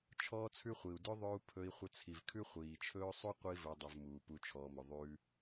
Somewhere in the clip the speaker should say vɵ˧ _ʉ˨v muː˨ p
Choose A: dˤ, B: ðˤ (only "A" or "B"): A